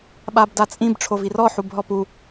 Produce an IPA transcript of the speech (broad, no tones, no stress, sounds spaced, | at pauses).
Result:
ɓ a b d a t͡sʼ ĩ b ʈ͡ʂʰ o v i r ɔ ħ u b ɦ ɔ p u